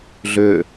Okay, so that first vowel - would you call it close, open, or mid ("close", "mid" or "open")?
close